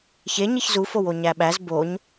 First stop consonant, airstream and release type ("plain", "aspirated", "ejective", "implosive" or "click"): implosive